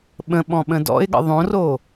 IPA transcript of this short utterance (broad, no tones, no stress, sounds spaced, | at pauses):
ɓ ə̃ ɓ ɔ̃ ɓ ə̃ d ɔ̰ ɪ̯ ɠ ə̰ ðˤ õ r o